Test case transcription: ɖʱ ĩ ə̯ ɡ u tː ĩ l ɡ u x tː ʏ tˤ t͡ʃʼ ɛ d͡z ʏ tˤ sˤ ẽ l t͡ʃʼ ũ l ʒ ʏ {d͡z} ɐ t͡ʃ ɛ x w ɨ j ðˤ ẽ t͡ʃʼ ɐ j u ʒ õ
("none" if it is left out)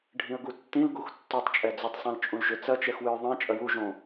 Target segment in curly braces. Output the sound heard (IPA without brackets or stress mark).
t͡s